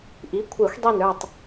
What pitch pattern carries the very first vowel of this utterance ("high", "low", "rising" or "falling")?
rising